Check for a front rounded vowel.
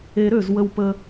present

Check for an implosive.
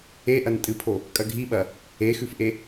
present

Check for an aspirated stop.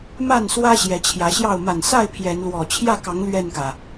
present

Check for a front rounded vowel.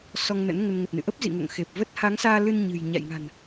absent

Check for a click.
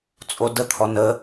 absent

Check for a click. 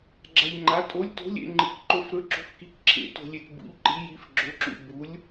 present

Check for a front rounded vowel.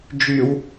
present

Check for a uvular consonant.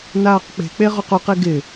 present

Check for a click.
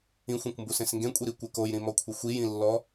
absent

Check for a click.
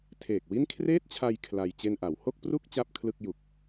absent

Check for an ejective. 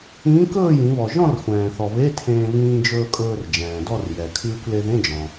present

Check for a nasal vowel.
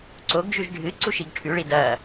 absent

